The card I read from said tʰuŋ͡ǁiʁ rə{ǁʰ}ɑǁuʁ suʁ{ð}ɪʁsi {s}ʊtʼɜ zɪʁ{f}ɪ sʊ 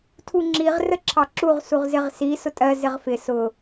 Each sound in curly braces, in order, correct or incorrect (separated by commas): correct, incorrect, correct, correct